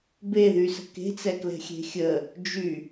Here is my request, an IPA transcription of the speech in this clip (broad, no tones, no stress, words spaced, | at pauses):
beðysə̤ ke̤t͡sɛklɛ̤xʲe̤ xʲə | d͡ʒy